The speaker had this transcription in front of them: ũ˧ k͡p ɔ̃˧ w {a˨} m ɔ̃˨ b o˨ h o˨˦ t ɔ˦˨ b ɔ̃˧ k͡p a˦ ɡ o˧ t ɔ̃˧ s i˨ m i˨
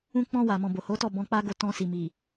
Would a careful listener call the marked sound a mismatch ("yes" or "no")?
no